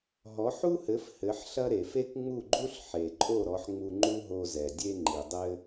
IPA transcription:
ɦ ɔ˩˥ ħ u˥ h ɘ˩˥ f h ɘ˩˥ ħ ɬ ɐ˥ ɾ e˩ f e˥ k ŋ͡m u˥˩ ɡ͡ǃ u˥ ɬ ħ e˩ ǃʼ o˥˩ ɾ ɔ˩˥ ħ ŋ͡m u˧ ŋ͡ǃ u˥ ɦ o˧ z ɛ˩ dʲ e˥ ŋ͡ǃ i˩ dˤ ɘ˥

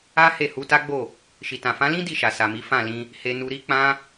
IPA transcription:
a˦ h e˦˨ h u˧ t a˦ ɡ͡b o˦˨ | ʃ i˨ t ã˨ f ã˨˦ l ĩ˦ d i˦˨ ʃ a˨ s a˨ m i˨˦ f ã˦˨ l ĩ˧ | h e˧ n u˧ ɾ i˦ k͡p ã˦

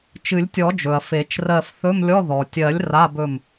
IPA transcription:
t͡ʃ ɨ˨˩˦ lʲ tʲ ɔ˨˩˦ d͡ʒ ɵ˩ ɐ̯ f e˨˩˦ t͡ʃ r ɜ˦˨ f θ ɵ˧˥˧ m lʲ ɔ˧˥˧ ð ɔ˩ tʲ ɜ˨˩˦ lʲ r a˧˥˧ b ɵ˦˨ m

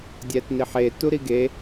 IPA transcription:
dʲ æ t n i ħ e t u ɾ i ɡ e

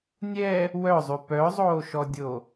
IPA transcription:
nʲ ɛ | w œ zˤ y p œ zˤ oː ʃ ɔ dʲ o

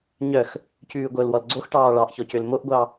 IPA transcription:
ɲ œ x | c ʉː ɡʷ œ l w ɔ l ɡ͡ǀ o x ʈ ɑː ɭ ɑ ʔ ç ɔ c ø l m o ʔ ɡʷ ɑ

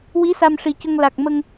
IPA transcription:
w i˧˥ s a˧ m ʂ i˨˩ c ə˧ ŋ l a˨˩ k̚ m ə˧ ŋ

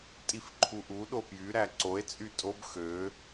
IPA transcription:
tʼ i f ǃʰ u ʔ u ɗ o p j y ɾ æ ǀ o e̯ t͡sʼ y tʼ o b x ø

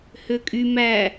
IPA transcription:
h ø kʼ y m æ

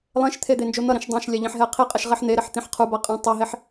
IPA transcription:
lˠ ẽ ʃ t̪ʰ e d̪ e n d͡ʒ o n̪ ʌ ɾ ĩ ʃ dˤ ã ʃ lʲ a ʎ ĩ ħ ɦ ɛ qʰ i qʼ ɛ ʃ ʁ e ħ n̪ e ɾ ɛ ħ t̪ ĩ ħ qʰ u b a qʼ ã tˤ i ɦ e ħ

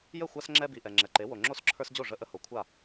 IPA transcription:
j ə˥˩ xʷ a˦ s ŋ͡ǁ ɛ˦ b i˩ ʔ ɛ˩ ŋ͡ǁ ɛ˩ ǃ e˩˥ w o˩ ŋ͡ǁ o˥˩ s ǁʰ ə˞˦ s d͡ʑ o˥˩ ʐ ə˦ ʔ ə˦ h o˩ kʷʰ a˥˩

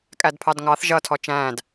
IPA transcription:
kʼ æ d pʰ ɑ d ŋ ɑ θ ʒ ʌ tʰ ɔ t͡ʃ æ̃ː d

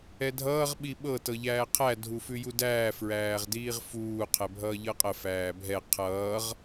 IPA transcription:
ɛ dʱ ʌː ʁ ɓ i ɓ ɤ t ɤ ʎ æː qʰ æ dʱ u f ʉ j u d æː f ɹ æː ʁ d iː ʁ f uː qʰ ɛ bʱ ʌː ʎ ɤ qʼ ə f æː bʱ ɛ qʰ ʌː ʁ

